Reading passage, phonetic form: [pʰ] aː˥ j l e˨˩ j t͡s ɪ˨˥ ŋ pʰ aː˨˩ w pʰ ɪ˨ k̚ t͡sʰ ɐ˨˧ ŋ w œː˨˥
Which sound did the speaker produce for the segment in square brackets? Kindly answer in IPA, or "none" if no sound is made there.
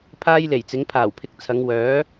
pʰ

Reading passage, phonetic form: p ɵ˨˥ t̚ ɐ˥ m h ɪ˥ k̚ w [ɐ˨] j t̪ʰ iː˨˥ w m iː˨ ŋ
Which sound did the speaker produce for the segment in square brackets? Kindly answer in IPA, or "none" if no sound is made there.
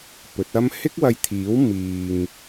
ɐ˧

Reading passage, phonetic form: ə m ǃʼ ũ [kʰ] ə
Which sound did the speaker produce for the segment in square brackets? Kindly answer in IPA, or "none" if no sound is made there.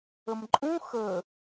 x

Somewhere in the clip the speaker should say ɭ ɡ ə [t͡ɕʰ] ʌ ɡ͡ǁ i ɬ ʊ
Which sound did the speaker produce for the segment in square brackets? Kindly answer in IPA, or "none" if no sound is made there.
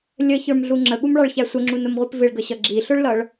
ɕ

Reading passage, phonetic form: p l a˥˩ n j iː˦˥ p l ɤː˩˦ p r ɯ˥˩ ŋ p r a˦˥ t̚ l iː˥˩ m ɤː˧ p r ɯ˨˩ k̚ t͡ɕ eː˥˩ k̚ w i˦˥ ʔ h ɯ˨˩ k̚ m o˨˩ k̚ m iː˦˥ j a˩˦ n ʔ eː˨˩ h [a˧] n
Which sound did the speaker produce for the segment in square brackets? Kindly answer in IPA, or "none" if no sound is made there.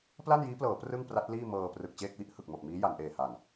a˨˩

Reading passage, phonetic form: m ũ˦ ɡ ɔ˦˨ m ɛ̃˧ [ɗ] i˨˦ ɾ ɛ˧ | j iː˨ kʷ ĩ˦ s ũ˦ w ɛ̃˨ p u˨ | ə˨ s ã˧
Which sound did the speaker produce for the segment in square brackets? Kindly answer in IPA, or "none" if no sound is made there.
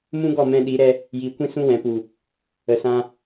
ɗ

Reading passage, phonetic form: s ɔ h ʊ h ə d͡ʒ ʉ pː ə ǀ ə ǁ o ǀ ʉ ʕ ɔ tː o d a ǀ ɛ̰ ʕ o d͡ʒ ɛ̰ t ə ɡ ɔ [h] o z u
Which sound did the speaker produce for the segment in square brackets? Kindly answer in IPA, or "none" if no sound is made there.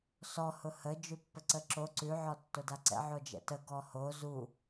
h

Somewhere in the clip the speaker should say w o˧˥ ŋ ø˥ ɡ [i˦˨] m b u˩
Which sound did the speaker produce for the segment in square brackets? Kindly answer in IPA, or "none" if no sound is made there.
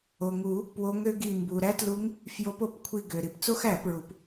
i˦˨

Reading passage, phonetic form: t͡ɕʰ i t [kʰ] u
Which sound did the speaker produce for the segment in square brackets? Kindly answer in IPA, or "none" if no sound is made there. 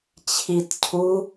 cʰ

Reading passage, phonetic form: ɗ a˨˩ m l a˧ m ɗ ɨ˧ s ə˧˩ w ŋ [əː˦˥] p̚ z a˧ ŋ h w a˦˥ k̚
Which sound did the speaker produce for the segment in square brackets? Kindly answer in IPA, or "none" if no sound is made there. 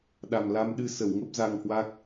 ə˦˥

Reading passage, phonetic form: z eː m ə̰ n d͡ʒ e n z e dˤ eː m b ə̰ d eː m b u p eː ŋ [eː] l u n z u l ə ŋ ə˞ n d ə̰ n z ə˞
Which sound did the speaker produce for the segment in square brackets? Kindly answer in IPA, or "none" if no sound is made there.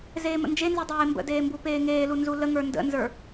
eː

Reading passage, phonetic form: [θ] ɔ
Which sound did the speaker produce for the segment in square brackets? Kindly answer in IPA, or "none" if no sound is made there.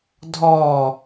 dʱ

